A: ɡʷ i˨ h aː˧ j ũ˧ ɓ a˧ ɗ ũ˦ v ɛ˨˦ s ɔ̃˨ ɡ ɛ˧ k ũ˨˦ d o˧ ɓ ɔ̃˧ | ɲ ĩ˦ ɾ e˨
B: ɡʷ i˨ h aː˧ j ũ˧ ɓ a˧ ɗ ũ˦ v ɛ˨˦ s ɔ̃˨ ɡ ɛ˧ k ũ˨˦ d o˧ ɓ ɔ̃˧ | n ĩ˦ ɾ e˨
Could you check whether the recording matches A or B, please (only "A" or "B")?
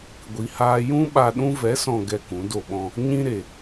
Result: A